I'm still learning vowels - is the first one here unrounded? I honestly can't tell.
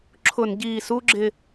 no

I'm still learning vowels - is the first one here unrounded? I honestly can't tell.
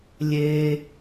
yes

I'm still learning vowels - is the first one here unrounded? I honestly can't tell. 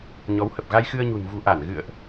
no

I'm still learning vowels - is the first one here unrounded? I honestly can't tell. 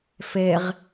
yes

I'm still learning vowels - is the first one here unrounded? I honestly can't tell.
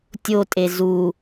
no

